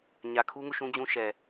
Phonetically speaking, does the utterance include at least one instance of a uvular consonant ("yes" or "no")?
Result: no